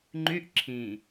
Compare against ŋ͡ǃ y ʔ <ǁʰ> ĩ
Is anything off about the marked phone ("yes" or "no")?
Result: no